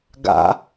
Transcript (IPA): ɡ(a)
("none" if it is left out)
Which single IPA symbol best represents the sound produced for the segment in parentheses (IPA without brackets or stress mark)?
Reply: a̰